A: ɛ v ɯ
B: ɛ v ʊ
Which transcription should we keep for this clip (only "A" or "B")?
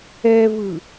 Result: A